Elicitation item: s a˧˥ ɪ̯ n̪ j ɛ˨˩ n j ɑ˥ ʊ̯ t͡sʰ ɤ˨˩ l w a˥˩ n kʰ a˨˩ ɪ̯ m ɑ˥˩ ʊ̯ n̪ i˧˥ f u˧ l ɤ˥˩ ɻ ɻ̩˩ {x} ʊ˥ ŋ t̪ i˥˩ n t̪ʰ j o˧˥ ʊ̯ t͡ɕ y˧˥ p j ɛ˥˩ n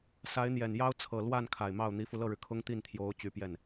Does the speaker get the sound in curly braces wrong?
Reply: yes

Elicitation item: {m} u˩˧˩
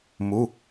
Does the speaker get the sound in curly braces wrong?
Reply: no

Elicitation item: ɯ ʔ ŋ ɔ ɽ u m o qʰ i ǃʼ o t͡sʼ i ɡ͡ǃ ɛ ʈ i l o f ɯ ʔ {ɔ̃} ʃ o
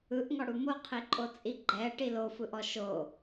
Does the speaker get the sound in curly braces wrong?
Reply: yes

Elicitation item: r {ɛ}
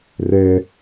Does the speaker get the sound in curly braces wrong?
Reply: no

